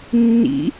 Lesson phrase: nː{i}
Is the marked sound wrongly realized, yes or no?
yes